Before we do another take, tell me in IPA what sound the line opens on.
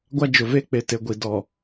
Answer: ɡʷ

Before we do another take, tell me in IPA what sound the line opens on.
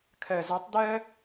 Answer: kʰ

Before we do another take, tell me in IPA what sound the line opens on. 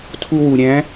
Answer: tʰ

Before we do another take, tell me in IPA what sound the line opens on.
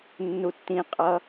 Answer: nː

